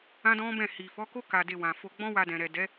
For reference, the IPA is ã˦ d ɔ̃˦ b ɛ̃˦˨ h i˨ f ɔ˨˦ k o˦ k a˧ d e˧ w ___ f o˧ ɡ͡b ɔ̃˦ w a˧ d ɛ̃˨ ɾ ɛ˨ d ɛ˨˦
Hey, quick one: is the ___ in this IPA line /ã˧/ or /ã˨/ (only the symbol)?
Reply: ã˨